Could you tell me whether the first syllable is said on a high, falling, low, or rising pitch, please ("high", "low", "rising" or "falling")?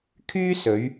high